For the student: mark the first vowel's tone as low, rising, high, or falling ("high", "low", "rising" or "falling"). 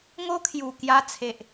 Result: high